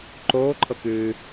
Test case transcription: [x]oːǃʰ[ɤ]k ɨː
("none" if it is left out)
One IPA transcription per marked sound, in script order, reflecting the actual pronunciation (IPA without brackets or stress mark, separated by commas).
ǃ, ɤ